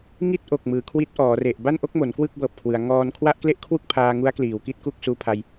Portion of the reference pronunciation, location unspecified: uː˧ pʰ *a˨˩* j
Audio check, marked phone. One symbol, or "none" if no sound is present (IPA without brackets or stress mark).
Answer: a˧